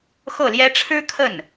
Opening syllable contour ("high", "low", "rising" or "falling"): falling